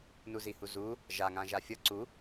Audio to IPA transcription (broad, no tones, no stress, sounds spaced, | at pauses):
n u z i h u z u | ʒ a ŋ ã ʒ a fʲ ɤ ǀ u